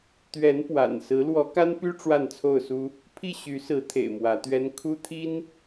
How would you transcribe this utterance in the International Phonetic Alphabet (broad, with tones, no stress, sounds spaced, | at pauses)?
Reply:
t̪ ɥ ɛ˨˦ n p w a̰˨˩ n s ɹ̩˨˦ l w ɔ˨˦ k a˦ n p y˦ ʈ͡ʂ w a˥˨ n t͡sʰ o˥˨ ʊ̯ s u˦ | pʰ i˥˨ ɕ y˨˦ s ɹ̩˨˦ t̪ʰ ḛ˨˩ ɪ̯ m w ä˨˦ t̪ ɥ ɛ˦ n kʰ u˦ t̪ʰ i˦ n